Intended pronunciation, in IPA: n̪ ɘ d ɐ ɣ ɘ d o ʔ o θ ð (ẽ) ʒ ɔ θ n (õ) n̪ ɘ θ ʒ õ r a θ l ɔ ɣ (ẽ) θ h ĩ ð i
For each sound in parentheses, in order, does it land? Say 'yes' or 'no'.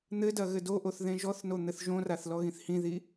yes, no, no

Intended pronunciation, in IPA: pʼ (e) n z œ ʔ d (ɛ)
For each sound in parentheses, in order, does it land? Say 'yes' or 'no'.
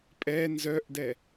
no, yes

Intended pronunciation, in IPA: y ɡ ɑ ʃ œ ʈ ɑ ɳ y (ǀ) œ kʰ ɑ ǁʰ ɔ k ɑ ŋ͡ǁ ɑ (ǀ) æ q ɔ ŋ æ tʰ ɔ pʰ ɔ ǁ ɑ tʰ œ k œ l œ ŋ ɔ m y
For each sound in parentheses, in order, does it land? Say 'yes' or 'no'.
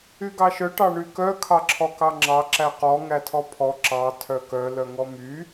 no, no

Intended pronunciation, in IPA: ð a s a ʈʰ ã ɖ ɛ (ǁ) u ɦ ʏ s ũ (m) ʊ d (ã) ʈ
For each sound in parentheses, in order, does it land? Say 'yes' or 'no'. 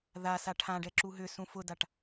yes, no, no

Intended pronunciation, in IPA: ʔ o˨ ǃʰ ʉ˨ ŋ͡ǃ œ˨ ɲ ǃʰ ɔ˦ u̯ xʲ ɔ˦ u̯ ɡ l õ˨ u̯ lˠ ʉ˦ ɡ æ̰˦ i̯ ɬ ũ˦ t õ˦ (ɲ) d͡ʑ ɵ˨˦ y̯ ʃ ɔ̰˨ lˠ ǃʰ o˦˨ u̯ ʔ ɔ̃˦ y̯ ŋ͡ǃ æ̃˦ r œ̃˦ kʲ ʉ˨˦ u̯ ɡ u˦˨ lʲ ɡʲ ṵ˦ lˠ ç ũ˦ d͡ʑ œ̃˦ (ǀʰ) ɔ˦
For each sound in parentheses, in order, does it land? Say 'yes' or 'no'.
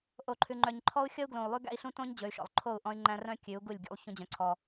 yes, yes

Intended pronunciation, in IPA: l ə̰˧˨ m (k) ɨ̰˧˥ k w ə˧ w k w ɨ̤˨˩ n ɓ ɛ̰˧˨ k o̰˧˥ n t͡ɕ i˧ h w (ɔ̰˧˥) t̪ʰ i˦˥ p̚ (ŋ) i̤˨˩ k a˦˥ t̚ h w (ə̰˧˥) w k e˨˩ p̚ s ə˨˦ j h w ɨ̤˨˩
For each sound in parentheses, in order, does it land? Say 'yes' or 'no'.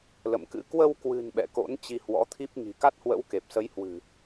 yes, yes, yes, yes

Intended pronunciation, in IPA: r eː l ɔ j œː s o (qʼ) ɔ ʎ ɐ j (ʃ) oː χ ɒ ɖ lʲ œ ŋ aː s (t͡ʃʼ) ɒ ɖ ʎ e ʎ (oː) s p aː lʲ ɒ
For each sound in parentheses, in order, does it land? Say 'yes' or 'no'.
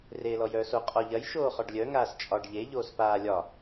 yes, yes, yes, yes

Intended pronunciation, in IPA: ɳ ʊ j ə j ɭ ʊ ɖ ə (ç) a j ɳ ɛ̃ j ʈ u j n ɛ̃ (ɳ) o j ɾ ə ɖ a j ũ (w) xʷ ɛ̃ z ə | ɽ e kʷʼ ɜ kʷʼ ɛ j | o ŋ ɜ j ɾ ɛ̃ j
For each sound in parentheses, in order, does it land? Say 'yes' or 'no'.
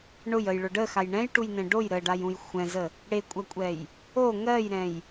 no, no, no

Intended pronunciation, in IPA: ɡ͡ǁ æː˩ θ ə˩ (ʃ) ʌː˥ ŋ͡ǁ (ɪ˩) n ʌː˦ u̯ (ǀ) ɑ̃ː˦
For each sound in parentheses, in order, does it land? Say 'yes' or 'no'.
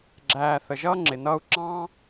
no, yes, no

